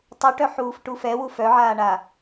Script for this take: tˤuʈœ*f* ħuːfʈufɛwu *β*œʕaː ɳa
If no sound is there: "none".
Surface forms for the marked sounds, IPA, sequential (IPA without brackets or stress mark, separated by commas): none, f